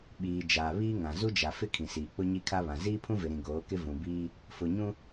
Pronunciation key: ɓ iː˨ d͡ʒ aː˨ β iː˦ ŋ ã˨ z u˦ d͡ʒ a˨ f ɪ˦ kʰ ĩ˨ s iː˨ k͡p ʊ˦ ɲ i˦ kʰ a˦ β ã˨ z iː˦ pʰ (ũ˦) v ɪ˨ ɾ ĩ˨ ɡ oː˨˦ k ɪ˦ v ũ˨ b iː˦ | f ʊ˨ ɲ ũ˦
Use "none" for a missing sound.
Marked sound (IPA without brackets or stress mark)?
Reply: ũ˦